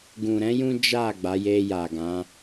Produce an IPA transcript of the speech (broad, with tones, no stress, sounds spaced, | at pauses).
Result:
ɡ ũ˨ ɾ ɛ̃˨˦ j ũ˦ d͡ʒ a˦˨ ɡ͡b a˨˦ j e˧ j a˨ ɡ ã˨˦